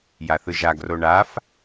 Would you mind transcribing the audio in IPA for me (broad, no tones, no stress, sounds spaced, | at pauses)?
j a θ ɯ ʒ a ɡ r o ɳ a f